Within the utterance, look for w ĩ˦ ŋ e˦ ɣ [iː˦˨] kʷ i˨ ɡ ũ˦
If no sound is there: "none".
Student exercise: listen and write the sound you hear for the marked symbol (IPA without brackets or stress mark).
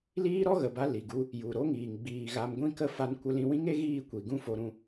iː˦˨